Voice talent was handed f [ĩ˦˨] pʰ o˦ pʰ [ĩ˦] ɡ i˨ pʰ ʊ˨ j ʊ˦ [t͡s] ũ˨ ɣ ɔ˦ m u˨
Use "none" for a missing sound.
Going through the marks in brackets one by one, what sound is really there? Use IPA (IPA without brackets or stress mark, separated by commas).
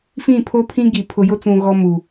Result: ĩ˦˨, ĩ˦, t͡s